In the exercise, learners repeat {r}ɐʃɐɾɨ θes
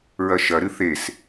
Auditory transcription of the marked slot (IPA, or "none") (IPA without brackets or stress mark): ɹ